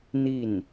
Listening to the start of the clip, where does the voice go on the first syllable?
falling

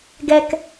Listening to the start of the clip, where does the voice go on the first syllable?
low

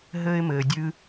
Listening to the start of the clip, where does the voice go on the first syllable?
high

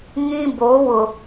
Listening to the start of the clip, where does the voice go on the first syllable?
high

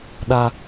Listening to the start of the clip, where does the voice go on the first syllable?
high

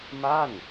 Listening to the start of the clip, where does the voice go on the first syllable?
falling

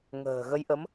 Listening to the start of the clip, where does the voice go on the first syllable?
low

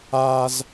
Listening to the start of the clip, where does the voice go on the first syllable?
high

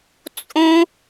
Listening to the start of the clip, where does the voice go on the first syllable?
high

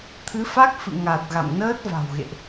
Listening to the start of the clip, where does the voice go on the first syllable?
rising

